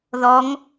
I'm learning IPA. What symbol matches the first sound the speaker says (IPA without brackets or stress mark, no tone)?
ð